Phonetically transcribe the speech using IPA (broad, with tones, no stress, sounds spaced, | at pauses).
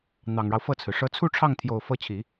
n̪ ɑ˨˩ ŋ ɻ ɑ˦ ʊ̯ f ɤ˥˩ t͡sʰ ɹ̩˩ ʂ ɤ˧˥ t͡sʰ u˥˧ ʈ͡ʂʰ ɑ˥˩ ŋ t̪ʰ j o˨˩ ʊ̯ f ɤ˧˥ t͡ɕʰ i˨˩˦